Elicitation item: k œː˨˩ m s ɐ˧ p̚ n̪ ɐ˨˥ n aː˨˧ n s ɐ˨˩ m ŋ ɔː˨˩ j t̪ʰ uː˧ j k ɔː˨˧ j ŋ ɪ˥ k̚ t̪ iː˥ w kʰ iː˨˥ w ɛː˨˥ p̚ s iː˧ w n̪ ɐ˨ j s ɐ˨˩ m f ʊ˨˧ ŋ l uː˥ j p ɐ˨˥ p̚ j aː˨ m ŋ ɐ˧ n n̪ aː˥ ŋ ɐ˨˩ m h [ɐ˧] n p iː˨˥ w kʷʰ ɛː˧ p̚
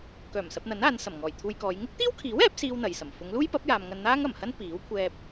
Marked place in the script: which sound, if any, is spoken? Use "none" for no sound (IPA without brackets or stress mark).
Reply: ɐ˥